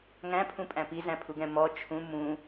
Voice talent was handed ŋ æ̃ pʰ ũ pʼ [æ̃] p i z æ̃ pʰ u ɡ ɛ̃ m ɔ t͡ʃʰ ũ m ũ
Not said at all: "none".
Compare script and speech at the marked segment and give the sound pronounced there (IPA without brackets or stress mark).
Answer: æ̃